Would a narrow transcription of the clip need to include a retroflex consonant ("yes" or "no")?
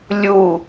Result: no